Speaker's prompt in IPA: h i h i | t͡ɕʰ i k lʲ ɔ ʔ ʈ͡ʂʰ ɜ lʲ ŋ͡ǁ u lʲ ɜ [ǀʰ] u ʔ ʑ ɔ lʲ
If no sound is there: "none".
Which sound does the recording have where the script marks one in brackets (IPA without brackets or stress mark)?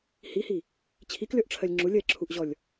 ǁʰ